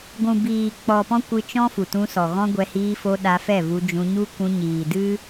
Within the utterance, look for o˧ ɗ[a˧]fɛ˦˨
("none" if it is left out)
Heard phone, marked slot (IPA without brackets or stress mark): a˧